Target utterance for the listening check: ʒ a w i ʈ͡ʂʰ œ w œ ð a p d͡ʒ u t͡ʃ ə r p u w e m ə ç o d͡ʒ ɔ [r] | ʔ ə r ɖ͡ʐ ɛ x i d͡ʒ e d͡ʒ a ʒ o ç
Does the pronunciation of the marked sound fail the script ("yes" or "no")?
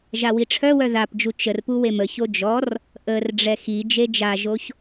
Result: no